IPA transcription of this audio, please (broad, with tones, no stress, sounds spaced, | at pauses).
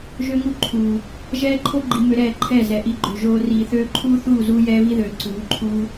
ʒ ø˦ ŋ u˦ ǃʰ uː˨ | ʒ ɛː˦ ǃʰ o˦ ɡ͡ǃ i˨ m ø˧ ɾ ɛː˦˨ ǃʰ ɛː˦˨ z ɛ˨ ʔ i˧ ɡ͡ǃ ø˨ ʒ oː˧ r iː˨ θ øː˧ ǃʰ uː˦ θ uː˦˨ z uː˦ j ɛː˦ β i˦ ð øː˨ ǀ uː˨˦ ǃʰ uː˦